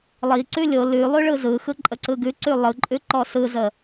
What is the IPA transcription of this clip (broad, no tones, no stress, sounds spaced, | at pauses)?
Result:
lˠ i ǀ ʉ lʲ o l ʉ lˠ ʉ ɭ ɯ z ɯ x ɯ ǃʼ ə ǀ ɯ ɡ ʉ ǀ ʉ lˠ ɯ ǃʼ ʉ ǃ ɔ s ɯ z ə